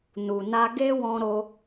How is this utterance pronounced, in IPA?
n u˨ n a˧ ɡ e˦ w ɔ̃˧ ɾ o˧

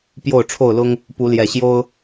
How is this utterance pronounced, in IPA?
p j o˥˨ ʊ̯ ʈ͡ʂʰ o˥˨ ʊ̯ l ʊ˦ ŋ | p u˨˦ l j ɛ˨˩ ɕ j o˦ ʊ̯

